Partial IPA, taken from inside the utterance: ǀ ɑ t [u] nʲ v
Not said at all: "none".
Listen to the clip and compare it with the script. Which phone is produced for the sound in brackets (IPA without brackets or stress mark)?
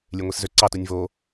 u